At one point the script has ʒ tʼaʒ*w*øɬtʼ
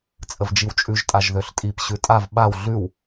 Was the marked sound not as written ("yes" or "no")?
yes